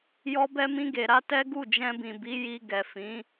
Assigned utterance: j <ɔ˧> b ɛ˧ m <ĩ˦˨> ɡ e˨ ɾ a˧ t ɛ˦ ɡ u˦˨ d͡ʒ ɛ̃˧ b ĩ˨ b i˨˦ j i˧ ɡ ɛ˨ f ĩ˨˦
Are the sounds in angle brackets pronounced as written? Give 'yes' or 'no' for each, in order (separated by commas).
yes, no